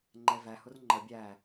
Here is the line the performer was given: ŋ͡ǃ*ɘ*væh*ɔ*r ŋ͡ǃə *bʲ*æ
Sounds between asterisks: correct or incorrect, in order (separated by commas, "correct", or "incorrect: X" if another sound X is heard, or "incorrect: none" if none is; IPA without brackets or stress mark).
incorrect: ɛ, incorrect: ʊ, correct